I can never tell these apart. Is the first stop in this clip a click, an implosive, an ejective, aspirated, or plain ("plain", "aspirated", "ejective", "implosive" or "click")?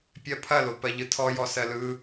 plain